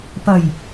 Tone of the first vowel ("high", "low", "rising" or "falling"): low